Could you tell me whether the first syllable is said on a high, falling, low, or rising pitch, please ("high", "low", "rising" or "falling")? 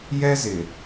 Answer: high